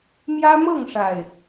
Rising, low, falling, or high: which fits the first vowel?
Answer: high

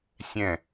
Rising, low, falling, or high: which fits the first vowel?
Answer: falling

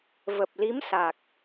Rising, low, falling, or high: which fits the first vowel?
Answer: low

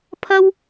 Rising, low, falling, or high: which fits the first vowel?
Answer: high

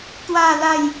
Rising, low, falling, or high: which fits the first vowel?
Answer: falling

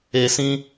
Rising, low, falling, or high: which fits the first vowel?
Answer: low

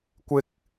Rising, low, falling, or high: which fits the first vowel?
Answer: high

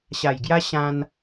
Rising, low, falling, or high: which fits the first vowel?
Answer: low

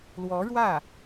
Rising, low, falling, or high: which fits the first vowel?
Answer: rising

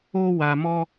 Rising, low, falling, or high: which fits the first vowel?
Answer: high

